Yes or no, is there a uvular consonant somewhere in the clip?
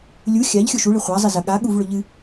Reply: yes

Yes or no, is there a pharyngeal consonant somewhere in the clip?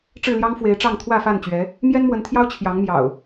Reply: no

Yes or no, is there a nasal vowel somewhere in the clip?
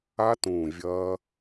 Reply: yes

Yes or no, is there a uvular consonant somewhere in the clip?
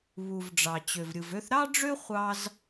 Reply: yes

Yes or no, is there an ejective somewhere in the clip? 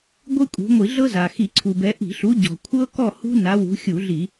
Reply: yes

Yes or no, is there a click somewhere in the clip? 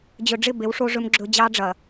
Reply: yes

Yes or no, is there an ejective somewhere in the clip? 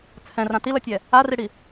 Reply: no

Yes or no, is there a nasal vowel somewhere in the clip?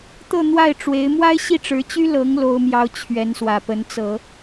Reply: no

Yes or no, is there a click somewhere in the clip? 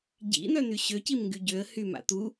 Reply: no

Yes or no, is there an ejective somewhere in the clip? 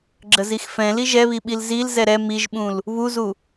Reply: no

